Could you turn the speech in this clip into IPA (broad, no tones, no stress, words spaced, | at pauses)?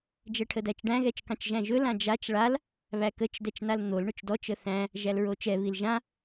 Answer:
d͡ʒɛʈʰədæt͡ʃɖæ̃ ɣɛt͡ʃkɑ̃t͡ʃʒæ̃ʒɵ lãd͡ʒat͡ʃ ɭal | βækət͡ʃ dɛt͡ʃnaln̪ol ɳɵt͡ʃdɔt͡ʃ əθæ̃ | ʒælɹot͡ʃɛ βilʒã